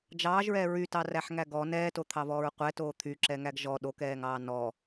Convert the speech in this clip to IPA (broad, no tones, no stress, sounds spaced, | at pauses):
d͡ʒ ɑː ʒ ɹ ɛː ɹ y t ɑ r æ ħ ŋ æ ɡ ɔ n ɛː t o t̪ʰ ɑ v ɔː ɹ qʷ ɛ t oː t̪ʰ y ǁ ɛ ŋ æ ɡ ʒ ɔ ɗ o k ɛː ŋ ɑː n ɔ